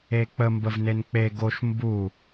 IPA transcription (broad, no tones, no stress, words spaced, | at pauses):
ek͡pə mbəvnenk͡pe ɡoʃ mbu